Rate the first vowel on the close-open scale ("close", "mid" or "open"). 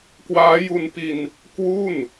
open